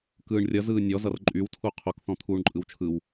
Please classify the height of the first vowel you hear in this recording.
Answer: high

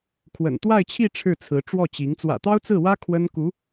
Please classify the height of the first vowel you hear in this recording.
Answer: mid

